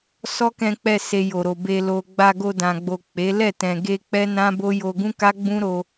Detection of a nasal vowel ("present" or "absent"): present